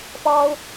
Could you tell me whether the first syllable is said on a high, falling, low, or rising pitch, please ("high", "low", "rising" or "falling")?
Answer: high